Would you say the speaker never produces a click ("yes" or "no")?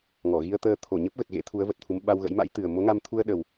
yes